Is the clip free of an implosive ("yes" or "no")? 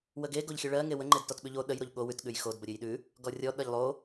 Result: no